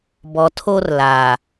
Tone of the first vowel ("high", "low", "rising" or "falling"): low